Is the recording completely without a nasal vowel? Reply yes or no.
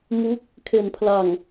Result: yes